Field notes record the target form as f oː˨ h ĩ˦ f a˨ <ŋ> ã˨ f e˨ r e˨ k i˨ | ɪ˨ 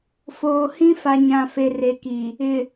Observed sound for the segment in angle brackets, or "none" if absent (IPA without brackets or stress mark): ɲ